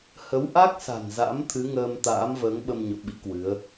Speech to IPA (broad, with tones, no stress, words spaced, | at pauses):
hə˨˦wʔa˦˥k̚ sa̤˨˩n za̰˧˥m t̪ʰɨ˨˦ŋəː˧mt̪a̰ː˧˥m vəː˨˦ŋɓə˧mɲo̰˧˨ ɓḭ˧˥kwɨ˨˦ə̯